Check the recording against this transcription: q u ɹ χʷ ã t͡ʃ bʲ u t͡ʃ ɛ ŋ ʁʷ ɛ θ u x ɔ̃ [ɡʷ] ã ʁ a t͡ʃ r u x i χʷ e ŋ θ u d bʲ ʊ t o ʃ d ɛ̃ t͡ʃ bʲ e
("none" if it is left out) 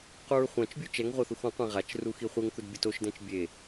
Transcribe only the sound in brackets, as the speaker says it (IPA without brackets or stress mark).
qʷ